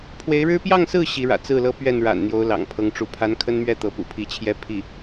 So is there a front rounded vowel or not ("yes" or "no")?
no